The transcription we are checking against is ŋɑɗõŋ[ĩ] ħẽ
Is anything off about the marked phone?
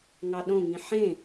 no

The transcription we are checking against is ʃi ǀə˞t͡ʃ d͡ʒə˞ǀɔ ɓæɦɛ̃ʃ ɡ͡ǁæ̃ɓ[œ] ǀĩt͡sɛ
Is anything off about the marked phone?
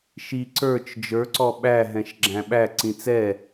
yes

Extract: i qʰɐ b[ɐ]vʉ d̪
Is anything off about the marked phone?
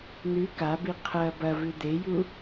no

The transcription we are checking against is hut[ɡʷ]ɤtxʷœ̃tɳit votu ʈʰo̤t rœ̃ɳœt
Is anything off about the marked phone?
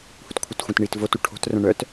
yes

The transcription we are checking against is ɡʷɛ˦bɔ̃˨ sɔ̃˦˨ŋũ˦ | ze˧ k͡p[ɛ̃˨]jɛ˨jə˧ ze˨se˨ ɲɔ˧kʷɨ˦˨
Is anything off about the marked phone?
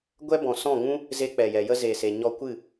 yes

